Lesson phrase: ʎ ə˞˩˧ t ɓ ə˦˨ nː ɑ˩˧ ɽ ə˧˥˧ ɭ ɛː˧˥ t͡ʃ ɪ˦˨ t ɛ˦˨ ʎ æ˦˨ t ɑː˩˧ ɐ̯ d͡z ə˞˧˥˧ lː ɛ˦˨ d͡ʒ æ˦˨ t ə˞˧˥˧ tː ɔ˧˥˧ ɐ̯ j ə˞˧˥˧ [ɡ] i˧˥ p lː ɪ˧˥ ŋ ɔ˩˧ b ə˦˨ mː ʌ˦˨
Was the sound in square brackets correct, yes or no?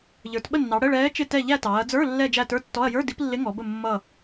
no